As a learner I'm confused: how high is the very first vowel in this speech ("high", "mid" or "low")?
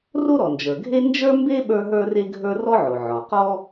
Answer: mid